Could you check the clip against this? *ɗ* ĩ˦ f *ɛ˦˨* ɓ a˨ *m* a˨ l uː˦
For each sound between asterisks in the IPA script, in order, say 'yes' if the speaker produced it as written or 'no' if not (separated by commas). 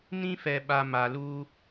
no, no, yes